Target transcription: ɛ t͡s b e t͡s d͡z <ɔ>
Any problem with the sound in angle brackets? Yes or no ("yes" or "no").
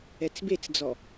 no